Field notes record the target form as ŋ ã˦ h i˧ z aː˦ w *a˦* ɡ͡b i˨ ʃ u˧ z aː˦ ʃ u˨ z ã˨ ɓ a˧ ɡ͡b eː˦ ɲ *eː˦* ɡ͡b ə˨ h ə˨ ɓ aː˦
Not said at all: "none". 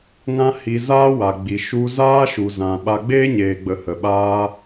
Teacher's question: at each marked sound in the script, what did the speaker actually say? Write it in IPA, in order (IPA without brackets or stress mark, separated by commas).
a˨, eː˨